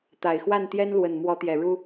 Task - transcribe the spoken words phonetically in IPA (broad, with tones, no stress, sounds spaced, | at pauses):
t̪ a˨˩ ɪ̯ x w a˥˩ n t̪ j ɛ˥ n l w ə˨˩ n m w ɔ˧˥ t̪ j ɛ˨˩ ɻ u˥